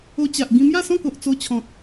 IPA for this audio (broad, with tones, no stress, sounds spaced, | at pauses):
o˧ t͡ɕ a˨ ʔ ɡ ĩ˧ m j a˥˧ s ɔ̃˥˧ k o˨ ʔ t͡s o˧ t͡ɕʰ ɔ̃˨ t̚